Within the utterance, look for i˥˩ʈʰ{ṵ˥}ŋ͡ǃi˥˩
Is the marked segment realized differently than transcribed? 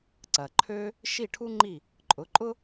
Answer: yes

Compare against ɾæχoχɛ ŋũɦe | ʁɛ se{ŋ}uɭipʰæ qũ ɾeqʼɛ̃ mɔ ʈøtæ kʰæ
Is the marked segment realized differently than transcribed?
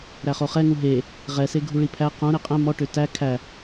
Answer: yes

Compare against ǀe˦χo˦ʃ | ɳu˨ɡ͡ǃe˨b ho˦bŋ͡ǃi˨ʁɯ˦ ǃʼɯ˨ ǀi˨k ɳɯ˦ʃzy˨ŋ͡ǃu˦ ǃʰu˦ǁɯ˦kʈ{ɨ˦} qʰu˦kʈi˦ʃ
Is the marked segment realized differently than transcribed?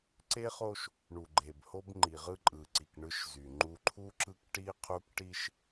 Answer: yes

